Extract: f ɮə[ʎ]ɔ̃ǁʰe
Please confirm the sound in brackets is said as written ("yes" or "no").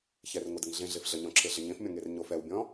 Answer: no